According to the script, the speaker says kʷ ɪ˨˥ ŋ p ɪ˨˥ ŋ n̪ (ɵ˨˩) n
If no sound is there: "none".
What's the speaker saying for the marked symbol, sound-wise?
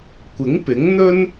ɵ˥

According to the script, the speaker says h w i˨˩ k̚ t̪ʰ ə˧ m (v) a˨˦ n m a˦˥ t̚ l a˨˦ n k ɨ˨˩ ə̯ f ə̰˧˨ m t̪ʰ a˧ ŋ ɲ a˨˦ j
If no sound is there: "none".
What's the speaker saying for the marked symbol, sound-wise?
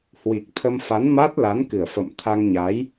f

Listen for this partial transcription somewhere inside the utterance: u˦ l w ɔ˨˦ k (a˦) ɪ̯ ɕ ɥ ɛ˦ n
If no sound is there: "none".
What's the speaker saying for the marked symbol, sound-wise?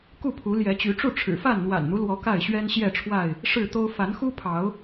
a˥˨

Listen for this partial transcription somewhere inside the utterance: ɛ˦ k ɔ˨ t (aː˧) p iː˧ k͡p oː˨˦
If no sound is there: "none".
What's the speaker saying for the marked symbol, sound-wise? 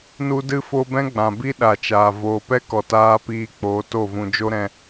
aː˧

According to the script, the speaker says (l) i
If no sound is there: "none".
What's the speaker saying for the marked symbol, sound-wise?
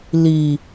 l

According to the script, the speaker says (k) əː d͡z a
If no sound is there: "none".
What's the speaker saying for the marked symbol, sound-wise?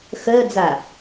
x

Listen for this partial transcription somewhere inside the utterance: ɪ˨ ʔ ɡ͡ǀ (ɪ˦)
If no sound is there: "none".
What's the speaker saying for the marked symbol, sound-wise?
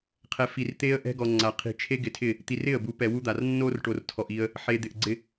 ɪ˦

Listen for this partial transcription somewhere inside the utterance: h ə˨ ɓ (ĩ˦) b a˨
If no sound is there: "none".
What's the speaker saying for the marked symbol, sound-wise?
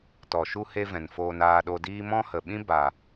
ĩ˦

